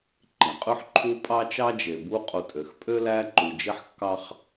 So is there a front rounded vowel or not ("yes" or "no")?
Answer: yes